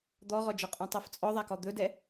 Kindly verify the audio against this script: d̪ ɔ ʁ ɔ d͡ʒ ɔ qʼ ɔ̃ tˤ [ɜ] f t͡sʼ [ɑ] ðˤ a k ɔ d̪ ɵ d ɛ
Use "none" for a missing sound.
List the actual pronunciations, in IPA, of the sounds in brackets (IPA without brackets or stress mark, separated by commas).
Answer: ɜ, ɔ